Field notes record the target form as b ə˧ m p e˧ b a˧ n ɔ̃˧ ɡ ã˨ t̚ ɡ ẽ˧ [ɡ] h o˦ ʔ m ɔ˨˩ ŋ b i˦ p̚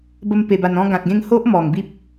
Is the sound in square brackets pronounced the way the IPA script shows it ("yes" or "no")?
no